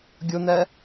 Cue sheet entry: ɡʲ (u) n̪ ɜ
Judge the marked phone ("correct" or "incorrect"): incorrect